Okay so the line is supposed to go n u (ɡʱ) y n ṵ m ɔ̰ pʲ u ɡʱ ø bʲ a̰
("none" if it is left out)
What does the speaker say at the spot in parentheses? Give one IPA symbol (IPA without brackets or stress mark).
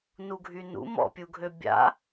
ɡʱ